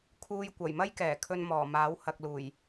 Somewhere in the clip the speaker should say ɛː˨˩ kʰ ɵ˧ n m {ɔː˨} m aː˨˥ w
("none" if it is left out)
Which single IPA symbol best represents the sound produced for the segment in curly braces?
ɔː˨˩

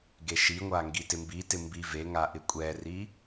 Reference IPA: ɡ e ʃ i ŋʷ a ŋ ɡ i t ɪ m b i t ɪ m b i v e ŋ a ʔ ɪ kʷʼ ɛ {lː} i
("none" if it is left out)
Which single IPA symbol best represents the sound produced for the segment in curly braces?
r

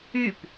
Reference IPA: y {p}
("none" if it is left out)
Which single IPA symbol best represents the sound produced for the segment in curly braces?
p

